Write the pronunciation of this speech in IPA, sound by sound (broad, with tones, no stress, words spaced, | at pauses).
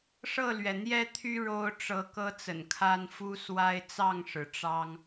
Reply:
ʂɤ˥˨lɥɛ˩n̪jɛ˦t̪ʰy˦ ɻo˦ʊ̯ ʈ͡ʂɤ˨˦ kɤ˦t͡sə̰˨˩nkʰa˦n fu˦swa˦ɪ̯ t͡sɑ˥˨ŋʂɻ̩˩ ʈ͡ʂɑ˦ŋ